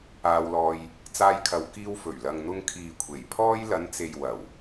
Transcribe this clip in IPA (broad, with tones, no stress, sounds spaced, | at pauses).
aː˧ w l ɔː˧ j | t͡s aː˧ j kʰ ɐ˨ w k iː˧ w f ɵ˨˩ ɥ l ɐ˨ ŋ n̪ ʊ˧ ŋ kʰ iː˨ kʷʰ e˨˩ j pʰ ɔː˥ j l ɐ˨˧ n t͡s e˨ j w ɐ˨˩ w